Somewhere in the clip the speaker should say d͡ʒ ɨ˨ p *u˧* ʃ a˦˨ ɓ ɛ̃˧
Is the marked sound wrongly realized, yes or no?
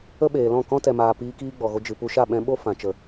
no